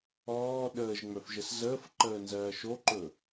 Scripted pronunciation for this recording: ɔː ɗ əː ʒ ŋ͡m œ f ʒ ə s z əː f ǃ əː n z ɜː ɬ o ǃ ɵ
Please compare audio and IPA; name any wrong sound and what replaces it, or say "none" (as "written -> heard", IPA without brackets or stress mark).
ɬ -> ʃ